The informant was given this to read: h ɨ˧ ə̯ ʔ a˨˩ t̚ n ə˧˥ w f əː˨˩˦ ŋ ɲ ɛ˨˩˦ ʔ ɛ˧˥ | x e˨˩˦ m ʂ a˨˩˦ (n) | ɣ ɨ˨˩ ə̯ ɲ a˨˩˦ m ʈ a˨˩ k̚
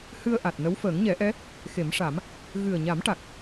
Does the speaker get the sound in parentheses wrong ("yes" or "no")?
yes